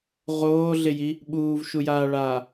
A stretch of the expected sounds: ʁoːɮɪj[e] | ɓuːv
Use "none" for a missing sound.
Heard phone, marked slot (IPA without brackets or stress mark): i